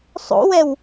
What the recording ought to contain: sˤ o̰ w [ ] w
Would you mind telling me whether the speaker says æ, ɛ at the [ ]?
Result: ɛ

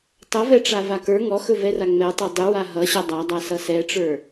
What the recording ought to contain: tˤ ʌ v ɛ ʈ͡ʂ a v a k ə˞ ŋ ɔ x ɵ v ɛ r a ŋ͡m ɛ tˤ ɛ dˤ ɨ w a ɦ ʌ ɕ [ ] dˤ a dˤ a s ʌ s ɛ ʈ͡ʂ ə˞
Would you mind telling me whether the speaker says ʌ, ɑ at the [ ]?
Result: ʌ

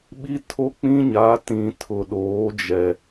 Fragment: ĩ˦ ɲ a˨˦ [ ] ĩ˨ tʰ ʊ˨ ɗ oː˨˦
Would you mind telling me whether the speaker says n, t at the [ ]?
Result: t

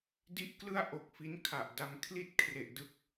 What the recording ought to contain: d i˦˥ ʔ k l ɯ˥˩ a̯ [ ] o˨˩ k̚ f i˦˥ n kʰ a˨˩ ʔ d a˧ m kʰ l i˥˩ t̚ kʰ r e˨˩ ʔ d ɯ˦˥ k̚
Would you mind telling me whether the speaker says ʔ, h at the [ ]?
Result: ʔ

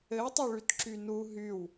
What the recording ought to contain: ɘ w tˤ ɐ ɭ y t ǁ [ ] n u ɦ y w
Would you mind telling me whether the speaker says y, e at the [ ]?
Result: y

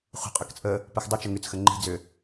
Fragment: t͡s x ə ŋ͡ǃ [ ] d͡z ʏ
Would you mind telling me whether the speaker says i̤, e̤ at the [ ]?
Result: i̤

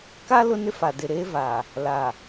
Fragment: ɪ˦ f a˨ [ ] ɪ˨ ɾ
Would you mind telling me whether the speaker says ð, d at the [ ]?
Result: d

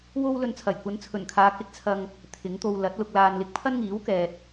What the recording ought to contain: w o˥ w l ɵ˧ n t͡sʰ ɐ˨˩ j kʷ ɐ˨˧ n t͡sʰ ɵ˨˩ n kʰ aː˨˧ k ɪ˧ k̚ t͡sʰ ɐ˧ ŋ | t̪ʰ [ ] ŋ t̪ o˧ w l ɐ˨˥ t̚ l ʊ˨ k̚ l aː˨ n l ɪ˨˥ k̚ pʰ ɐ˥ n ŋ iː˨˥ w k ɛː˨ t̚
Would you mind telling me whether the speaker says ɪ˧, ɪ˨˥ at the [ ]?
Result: ɪ˨˥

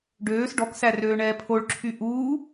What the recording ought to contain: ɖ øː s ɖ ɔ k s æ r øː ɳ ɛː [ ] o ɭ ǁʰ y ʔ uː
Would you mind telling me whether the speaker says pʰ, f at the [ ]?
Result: pʰ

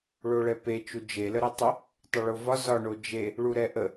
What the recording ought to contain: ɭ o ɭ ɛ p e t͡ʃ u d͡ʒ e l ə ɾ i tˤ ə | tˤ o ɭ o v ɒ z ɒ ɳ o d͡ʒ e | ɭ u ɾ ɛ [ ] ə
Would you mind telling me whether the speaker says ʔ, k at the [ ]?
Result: ʔ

